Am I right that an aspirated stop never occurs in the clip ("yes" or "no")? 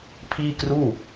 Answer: no